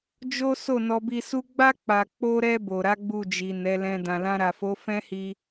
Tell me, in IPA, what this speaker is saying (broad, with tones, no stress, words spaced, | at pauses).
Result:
d͡ʒo˦ so˦˨nɔ˧bi˧su˦ ɡ͡ba˦ k͡pa˧ k͡po˧ɾɛ˧ bo˨ɾa˨˦ ɡ͡bu˦˨d͡ʒi˨nɛ˨˦lɛ̃˧ dã˨lã˧ɾa˨fo˨˦ fɛ̃˦hi˧